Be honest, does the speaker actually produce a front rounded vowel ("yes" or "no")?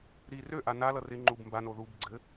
yes